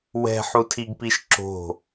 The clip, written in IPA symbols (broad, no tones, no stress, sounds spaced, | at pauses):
w ɛ̤ ħ u tʰ i ɡ p i ʃ ǁ o̤